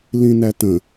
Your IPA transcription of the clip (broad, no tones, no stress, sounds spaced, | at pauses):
l ĩ n æ t ə̃